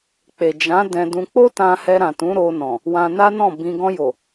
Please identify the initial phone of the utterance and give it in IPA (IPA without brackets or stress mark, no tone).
k͡p